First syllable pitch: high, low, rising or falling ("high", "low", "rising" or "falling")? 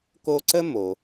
high